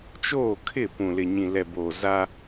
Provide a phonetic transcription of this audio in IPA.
t͡ʃoː˦˨kʰɪ˦˨ pũ˨lɪ˨ ɲĩ˨lɛ˨boː˨ za˦

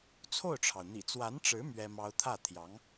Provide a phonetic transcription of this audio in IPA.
t͡sʰo˥˩ʊ̯ʈ͡ʂʰɑ˩ʊ̯n̪ḭ˨˩ t͡swa˧˥nʈ͡ʂɻ̩˧˥ mɥɛ˥mɑ˥ʊ̯ t̪ʰä˥˩t̪ʰjɑ˧˥ŋ

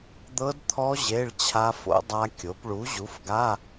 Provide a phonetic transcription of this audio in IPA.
d̪ɤ˦˥dt̪ʰɔ˦˥ ʑe˧˥˧ɭt͡ɕʰa˦˥fo̰˦˥ dˤa˦˥kʲo˨˥p ɭu˨˥ʑu˨˥fɡa˧˥˧

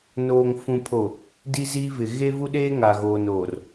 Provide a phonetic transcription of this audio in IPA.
noː˨ŋfũ˨pʰo˨ | di˦ziː˦ vɪ˨ɣe˦vu˦ɗeː˦ ŋa˨ɣoː˨noː˨r

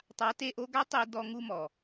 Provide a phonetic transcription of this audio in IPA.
tˤa˨˦te˧ʔo˧ɡa˦ tˤi˧ dɔ˧ŋu˧mɔ˨

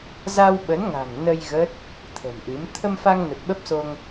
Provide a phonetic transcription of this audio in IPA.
za˧wɓə˨˦nŋa̤˨˩ŋ nə˧j ɣə˦˥t̚ | t̪ʰə̤˨˩mʔɨ˨˦m t̪ʰə˧mfa˧ŋ nə˨˩t̚ɓə˦˥p̚so˧ŋ

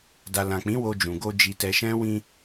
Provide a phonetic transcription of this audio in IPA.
da˨ lã˨k͡pĩ˨˦ wo˧d͡ʒũ˨ɡo˧ d͡ʒi˧tɛ˧ʃɛ̃˦ wĩ˧

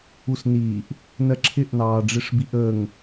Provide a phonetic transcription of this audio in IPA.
usniːʔ | nɜǁʰɪʔ nɑːɖ͡ʐɪʂbiʔəːŋ

